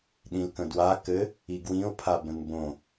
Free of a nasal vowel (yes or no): no